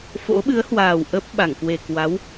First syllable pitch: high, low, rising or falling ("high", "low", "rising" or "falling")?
rising